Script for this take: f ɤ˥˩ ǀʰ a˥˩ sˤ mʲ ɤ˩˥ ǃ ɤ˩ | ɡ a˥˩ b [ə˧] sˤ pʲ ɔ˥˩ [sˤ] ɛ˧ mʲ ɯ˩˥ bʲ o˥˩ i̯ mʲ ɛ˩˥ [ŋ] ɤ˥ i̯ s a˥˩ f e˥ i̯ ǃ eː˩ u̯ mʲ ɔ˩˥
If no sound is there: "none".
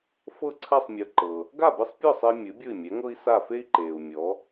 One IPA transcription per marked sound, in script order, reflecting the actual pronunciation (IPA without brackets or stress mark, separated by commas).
ɯ˧, sˤ, ŋ